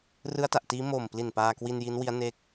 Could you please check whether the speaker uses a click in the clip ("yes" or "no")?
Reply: no